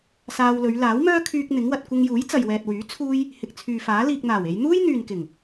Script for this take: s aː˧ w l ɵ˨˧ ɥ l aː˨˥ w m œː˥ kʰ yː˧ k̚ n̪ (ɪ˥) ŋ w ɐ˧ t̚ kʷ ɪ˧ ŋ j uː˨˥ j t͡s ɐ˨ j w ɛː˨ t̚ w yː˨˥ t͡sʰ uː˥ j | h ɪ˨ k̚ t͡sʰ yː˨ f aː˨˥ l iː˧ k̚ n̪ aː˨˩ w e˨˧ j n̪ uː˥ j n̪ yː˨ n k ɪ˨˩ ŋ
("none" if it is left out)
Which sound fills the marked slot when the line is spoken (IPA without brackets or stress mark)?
ɪ˨˥